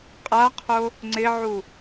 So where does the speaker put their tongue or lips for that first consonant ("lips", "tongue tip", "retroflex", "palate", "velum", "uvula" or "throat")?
uvula